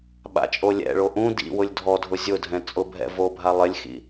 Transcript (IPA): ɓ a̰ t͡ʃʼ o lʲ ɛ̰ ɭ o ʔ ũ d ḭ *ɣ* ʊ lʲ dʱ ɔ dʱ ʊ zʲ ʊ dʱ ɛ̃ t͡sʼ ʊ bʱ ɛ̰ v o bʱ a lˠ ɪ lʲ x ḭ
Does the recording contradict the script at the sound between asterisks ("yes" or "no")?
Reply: yes